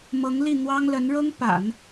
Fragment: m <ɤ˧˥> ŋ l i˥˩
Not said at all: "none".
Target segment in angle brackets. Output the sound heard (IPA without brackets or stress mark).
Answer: ɤ˧˥